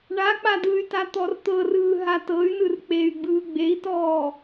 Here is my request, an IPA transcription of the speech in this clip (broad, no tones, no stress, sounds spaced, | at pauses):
ɳ a k͡p a d ɯ y̯ t a t̪ ɔ r t̪ ɤ r ɯː ɦ a t ɤ y̯ n ɯ r k͡p e y̯ ɡ͡b ɯː ɡ͡b e i̯ t ɔː